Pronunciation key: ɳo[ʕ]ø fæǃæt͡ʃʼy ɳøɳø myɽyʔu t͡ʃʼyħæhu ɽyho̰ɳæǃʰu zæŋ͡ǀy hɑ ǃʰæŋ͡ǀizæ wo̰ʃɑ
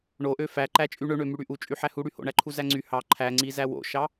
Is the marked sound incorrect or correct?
incorrect